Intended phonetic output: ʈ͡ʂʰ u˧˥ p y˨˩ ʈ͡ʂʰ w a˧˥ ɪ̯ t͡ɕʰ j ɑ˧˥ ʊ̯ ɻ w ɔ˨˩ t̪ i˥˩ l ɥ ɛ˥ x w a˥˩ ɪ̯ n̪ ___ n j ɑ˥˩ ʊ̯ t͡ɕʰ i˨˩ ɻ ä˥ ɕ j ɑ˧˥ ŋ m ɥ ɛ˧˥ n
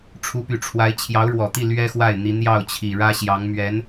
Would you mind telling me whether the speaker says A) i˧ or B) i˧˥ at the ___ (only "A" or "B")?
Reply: B